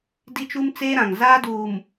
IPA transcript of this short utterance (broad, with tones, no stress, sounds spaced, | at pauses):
d i˦ t͡ʃ u˦ m t͡s eː˦ ɾ ã˨ ŋ z aː˦ d uː˨ m